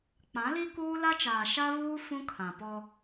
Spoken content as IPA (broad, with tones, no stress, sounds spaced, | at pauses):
k͡p ã˨˦ l i˦ k uː˦ l a˦ t͡ʃ aː˨ ʃ a˦ β uː˦ f ũ˦ kʰ ã˨ p ɔ˦